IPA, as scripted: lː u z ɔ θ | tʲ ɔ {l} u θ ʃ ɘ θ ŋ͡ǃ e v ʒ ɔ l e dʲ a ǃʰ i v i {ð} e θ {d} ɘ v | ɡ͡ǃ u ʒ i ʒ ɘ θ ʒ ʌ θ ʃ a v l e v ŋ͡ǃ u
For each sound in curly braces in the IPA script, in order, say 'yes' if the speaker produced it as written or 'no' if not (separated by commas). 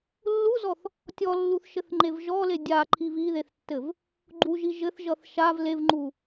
no, yes, no